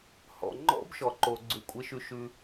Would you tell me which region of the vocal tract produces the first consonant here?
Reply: throat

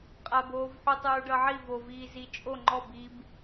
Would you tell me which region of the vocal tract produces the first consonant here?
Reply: uvula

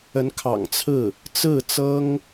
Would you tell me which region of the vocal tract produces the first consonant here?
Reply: tongue tip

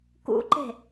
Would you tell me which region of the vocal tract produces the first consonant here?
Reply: velum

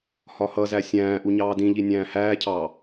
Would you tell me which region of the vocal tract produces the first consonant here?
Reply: throat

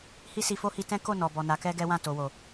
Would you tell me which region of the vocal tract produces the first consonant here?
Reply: throat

